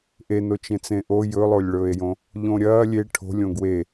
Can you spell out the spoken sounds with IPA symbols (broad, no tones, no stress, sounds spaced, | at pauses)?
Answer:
ʔ e n o t͡ʃ ẽ t͡s ẽ ʔ o j ɵ lˠ o lʲ ɭ ɵː e̯ j õ | ʎ õ ɾʲ ɐː lʲ e ʈʰ o̤ lʲ õ ɡ w e